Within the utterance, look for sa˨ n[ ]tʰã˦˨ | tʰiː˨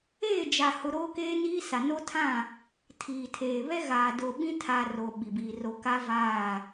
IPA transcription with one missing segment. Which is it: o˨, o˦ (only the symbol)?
o˦